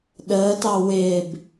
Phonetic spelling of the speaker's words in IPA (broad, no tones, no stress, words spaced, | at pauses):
ɗəːtɑ wɪːb